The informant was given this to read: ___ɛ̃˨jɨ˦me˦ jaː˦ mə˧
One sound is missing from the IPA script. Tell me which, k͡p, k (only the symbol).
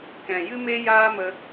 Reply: k